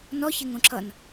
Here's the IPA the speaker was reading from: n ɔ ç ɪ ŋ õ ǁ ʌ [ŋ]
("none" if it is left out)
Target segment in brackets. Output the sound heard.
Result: n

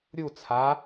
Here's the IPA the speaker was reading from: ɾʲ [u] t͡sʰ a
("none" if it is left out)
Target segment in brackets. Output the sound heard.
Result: u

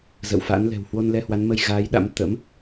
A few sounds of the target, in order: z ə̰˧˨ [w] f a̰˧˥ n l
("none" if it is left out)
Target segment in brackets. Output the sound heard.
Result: w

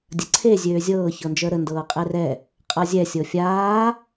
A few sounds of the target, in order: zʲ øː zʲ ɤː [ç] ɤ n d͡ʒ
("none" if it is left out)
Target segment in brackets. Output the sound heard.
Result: ç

